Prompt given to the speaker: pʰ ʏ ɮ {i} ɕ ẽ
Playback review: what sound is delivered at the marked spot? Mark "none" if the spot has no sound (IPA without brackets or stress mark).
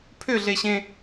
e